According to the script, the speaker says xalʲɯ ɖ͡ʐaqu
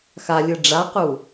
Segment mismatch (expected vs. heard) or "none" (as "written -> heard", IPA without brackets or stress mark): none